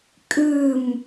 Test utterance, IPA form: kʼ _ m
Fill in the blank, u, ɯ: ɯ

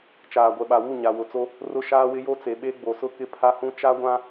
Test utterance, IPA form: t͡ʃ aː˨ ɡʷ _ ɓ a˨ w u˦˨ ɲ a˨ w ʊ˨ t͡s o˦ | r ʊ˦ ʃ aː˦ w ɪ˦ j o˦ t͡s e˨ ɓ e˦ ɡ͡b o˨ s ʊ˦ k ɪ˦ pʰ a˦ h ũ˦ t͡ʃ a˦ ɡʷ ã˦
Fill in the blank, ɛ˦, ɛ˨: ɛ˨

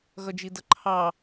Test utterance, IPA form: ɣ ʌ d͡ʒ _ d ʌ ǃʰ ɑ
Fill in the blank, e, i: i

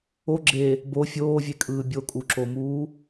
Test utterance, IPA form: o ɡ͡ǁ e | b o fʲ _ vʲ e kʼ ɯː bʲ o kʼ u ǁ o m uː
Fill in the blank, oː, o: oː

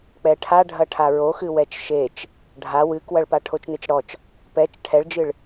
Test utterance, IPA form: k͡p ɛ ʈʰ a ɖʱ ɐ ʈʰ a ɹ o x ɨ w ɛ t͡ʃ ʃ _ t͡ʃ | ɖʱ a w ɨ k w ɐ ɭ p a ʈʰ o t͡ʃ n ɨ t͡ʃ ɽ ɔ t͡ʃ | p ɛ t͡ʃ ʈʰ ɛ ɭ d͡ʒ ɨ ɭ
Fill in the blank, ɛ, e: e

